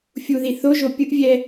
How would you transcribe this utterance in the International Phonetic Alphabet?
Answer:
fʲ u ð i θ o ʒ o pʲ ɯ ʔ vʲ ɛ

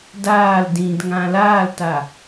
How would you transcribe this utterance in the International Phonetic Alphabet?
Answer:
d aː l d ĩ d ŋ ã l aː l t a

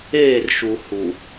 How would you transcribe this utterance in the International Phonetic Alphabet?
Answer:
eː˦˨ r ʃ u˨ h u˨

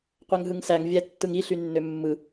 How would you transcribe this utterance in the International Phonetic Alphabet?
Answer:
qʷ æ ŋ ɦ ɯ ŋ s æ ŋ vʲ æ tː ɯ ŋ i ɬ y nː ø mː ɯ

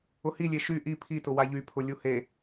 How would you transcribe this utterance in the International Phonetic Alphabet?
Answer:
ʊ h i lʲ e ʃ y ʔ i pʰ i t ʊ w a ʎ y pʰ ʊ lʲ u h e

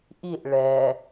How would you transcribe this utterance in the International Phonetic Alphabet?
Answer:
ʔ i ʔ ɭ ɛ

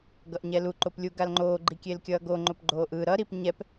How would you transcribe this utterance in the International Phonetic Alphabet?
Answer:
ɡ ʌ ʔ ɲ ɛ l u ǃ o p lʲ u ɡ a l ŋ͡ǃ oː ɡ͡ǃ i kʲ e l kʲ ʌː ɡ o ŋ͡ǃ o p ɡ͡ǃ oː ʔ ɯ ɾ ʌ ɾ i p ɲ ɛ p

